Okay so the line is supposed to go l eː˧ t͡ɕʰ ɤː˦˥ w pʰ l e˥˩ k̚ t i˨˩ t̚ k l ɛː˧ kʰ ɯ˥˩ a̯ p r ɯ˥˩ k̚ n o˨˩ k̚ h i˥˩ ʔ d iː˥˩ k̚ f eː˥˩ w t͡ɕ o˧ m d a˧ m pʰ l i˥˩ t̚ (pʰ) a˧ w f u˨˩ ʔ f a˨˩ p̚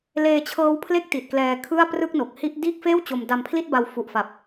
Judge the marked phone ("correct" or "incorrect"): incorrect